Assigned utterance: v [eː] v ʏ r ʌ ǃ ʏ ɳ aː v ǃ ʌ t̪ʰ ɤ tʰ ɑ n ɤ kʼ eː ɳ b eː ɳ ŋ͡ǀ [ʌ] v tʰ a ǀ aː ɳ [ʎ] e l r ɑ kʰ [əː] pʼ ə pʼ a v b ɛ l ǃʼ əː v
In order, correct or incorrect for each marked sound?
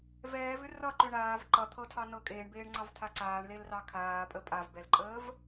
incorrect, incorrect, incorrect, incorrect

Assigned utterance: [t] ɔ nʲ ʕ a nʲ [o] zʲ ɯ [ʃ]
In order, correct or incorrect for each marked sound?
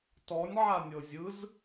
correct, incorrect, incorrect

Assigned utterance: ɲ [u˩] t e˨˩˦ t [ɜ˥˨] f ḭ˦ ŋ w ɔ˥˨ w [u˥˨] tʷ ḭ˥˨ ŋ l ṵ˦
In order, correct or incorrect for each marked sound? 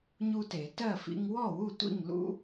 incorrect, correct, correct

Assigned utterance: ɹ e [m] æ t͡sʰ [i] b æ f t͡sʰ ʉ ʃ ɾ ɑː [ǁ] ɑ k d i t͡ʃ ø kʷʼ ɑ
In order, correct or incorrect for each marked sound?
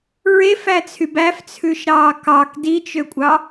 incorrect, incorrect, incorrect

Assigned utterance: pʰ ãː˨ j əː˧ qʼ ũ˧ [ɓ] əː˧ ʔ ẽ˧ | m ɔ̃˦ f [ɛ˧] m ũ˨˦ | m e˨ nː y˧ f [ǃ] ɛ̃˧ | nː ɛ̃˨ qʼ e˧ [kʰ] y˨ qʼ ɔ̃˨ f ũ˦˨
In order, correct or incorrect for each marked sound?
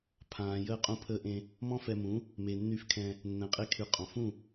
incorrect, correct, incorrect, correct

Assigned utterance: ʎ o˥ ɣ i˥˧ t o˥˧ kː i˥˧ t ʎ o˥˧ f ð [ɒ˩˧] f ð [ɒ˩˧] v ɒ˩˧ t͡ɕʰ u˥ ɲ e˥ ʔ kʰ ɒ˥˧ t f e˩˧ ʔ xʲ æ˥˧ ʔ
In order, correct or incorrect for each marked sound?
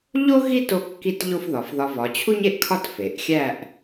correct, incorrect

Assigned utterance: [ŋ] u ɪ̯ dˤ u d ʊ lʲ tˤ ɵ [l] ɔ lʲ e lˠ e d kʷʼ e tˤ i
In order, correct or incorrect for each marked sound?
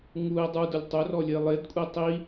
correct, incorrect

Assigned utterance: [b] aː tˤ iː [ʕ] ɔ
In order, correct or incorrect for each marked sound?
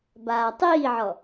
correct, correct

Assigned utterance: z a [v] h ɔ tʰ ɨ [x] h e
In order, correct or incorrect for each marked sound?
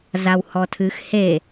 incorrect, correct

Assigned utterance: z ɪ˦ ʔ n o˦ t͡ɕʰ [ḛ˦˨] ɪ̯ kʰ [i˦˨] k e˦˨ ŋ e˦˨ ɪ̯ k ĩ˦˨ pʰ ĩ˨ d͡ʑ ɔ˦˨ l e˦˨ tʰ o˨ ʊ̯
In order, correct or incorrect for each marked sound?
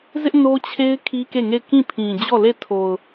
incorrect, incorrect

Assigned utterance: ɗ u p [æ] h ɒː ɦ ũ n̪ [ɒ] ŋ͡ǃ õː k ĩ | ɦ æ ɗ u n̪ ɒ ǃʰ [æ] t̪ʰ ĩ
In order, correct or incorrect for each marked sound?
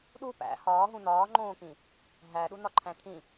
incorrect, incorrect, incorrect

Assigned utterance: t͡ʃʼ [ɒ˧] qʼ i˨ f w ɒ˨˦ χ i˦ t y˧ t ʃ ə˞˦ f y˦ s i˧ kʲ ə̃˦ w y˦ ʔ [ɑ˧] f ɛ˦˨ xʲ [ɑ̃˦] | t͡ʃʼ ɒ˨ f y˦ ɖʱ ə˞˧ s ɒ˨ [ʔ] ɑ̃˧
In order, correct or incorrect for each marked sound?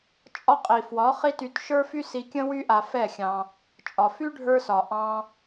correct, incorrect, incorrect, correct

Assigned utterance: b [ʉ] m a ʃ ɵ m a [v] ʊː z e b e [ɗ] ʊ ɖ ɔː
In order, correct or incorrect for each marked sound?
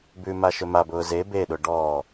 correct, incorrect, correct

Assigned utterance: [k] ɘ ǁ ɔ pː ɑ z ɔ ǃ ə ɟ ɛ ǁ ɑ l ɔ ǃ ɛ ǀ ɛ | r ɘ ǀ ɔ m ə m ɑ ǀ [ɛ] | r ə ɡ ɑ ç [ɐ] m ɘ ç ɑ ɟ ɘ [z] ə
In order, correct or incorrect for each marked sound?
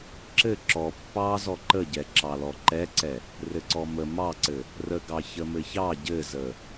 incorrect, incorrect, incorrect, correct

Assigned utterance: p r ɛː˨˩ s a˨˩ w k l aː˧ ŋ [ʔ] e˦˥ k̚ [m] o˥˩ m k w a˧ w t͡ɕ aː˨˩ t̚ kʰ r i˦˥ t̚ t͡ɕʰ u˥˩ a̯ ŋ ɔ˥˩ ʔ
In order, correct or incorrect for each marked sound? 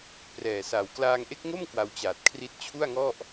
correct, incorrect

